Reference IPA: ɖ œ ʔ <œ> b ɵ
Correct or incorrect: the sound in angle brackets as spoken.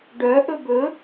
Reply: incorrect: ɵ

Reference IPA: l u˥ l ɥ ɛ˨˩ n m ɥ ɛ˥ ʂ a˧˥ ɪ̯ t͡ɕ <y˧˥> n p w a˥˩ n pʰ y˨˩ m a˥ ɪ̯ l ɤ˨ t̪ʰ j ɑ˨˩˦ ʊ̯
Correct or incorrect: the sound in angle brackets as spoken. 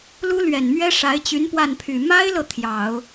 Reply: correct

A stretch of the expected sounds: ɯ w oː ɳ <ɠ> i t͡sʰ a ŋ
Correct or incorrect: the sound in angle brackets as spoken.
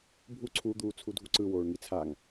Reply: incorrect: ŋ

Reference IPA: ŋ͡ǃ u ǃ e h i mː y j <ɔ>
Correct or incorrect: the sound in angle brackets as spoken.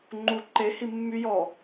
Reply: correct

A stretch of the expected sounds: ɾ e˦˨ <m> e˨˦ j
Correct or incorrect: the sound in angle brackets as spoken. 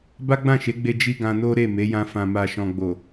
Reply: correct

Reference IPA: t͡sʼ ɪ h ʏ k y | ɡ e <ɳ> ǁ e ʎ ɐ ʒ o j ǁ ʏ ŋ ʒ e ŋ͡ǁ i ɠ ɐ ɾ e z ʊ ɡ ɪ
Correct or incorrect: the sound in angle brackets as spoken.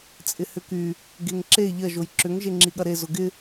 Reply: incorrect: ŋ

